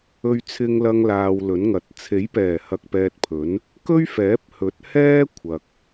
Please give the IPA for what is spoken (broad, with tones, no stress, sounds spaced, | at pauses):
ɵ˧ ɥ t͡sʰ ɪ˧ ŋ l ɐ˧ ŋ l aː˨ w l ɵ˨˥ n ŋ ɐ˨ t̚ t͡sʰ e˨˥ j p ɛː˨˩ h ɐ˨ k̚ p ɛː˧ t̚ pʰ ɵ˨˥ n | k ɵ˥ ɥ f ɛː˨˥ p̚ h ɵ˨˥ t̚ h ɛː˥ kʷʰ ɐ˨ k̚